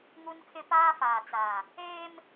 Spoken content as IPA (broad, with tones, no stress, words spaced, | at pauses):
ŋu˦nkʰɪ˦ paː˦faː˨t͡sa˨ | eː˦m